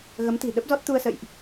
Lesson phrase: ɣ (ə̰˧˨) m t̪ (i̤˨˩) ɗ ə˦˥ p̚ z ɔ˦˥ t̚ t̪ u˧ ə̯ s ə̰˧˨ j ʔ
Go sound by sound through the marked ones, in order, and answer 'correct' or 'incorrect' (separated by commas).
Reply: incorrect, correct